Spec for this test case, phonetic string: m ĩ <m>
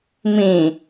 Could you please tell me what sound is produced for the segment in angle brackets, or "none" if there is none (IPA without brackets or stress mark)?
none